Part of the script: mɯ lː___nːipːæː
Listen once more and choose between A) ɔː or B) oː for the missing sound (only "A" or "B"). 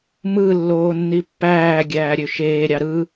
B